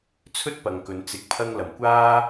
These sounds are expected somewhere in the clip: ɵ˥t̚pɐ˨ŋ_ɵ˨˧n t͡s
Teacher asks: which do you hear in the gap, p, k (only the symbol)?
k